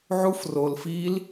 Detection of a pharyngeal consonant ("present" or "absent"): present